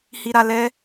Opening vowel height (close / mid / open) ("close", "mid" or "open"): close